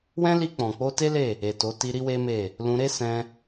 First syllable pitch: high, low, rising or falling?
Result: high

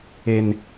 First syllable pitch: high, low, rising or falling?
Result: high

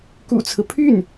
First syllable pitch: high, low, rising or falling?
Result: low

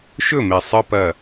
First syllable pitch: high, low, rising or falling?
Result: falling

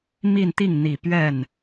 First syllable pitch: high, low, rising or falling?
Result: falling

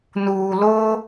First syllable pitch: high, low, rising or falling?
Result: low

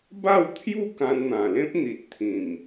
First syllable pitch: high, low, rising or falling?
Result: falling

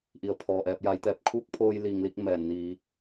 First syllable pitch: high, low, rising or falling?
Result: low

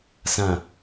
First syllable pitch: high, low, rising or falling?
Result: low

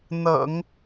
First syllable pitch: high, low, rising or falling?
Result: low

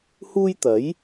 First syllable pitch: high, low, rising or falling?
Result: high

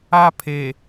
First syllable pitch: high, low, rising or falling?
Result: high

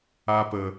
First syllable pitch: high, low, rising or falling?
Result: high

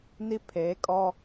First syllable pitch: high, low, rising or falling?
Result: high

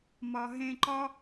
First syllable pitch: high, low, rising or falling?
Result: low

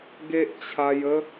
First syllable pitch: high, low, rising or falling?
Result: high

